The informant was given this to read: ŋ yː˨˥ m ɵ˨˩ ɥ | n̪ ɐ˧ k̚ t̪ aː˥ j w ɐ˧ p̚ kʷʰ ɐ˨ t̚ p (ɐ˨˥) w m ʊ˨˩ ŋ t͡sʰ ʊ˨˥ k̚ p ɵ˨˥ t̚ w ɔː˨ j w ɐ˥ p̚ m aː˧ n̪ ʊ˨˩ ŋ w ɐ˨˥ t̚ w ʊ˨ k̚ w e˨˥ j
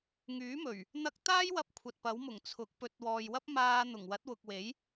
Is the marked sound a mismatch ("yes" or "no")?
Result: no